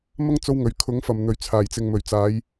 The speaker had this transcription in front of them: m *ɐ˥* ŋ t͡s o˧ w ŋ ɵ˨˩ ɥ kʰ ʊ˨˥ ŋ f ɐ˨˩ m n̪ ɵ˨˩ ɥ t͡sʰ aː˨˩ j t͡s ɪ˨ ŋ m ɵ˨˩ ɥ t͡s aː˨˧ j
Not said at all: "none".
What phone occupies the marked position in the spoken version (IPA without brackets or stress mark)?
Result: ɐ˥